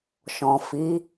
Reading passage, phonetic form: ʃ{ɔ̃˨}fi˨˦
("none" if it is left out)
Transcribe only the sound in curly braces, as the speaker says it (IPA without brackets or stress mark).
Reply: ɔ̃˨